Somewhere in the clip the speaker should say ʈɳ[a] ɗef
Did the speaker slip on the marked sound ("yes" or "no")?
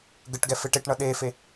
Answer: yes